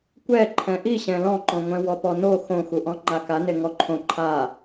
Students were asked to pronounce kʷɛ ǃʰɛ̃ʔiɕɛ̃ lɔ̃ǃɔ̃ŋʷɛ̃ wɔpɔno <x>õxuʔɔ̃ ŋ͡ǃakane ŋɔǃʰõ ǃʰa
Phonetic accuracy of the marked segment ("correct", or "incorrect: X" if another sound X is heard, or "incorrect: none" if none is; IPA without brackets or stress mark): correct